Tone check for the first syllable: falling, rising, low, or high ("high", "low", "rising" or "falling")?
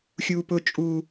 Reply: low